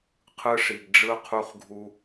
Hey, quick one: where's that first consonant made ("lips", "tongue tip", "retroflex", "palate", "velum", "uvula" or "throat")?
uvula